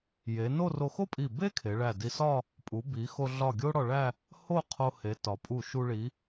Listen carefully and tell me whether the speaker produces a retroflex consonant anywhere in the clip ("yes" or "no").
yes